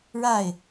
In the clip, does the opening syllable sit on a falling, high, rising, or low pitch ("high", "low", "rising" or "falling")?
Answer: falling